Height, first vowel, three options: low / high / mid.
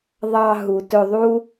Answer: low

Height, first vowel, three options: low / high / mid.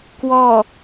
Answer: mid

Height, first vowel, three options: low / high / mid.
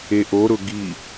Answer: mid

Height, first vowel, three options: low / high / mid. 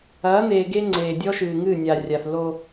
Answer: low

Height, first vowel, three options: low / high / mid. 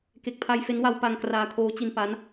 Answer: mid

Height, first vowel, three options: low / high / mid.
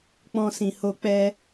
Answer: mid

